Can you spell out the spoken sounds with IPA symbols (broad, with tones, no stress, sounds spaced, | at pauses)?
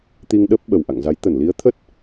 t̪ i˧ ŋ ɗ əː˦˥ p̚ ɓ ə˨˩ w ʔ a̰˧˨ ŋ z a˨˦ j t̪ ə˧˩ n l i˨˦ ə̯ t̪ʰ ə˦˥ t̚